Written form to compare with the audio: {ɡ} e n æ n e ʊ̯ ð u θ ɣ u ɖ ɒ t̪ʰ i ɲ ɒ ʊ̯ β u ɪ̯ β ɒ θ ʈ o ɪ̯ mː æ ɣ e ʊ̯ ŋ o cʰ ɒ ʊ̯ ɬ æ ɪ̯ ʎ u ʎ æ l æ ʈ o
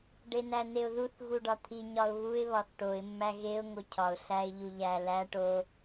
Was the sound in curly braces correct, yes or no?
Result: no